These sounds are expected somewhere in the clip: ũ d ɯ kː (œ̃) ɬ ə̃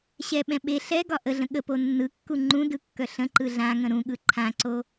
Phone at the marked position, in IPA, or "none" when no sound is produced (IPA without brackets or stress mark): œ